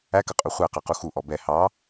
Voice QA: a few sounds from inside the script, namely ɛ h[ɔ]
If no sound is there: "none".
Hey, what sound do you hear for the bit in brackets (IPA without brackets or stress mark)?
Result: ɑ